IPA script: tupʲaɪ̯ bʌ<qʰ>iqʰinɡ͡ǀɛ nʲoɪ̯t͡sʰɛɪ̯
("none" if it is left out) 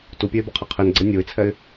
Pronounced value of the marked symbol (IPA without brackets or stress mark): qʰ